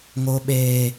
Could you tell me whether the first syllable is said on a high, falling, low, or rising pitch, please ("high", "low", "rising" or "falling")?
high